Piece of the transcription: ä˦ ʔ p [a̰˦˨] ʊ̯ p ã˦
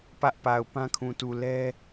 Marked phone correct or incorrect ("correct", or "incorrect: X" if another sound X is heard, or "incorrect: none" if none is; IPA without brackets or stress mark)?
incorrect: a˨